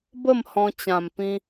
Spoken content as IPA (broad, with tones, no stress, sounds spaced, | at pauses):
b ə˥˧ m h ɔ̃˧ t͡ɕ ã˨˩ m p ĩ˧